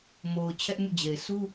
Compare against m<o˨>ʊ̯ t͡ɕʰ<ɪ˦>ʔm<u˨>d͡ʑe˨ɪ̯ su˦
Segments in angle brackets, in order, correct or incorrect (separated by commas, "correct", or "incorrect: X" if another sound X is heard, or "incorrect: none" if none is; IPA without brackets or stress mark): correct, incorrect: ɛ˦, incorrect: ṵ˦˨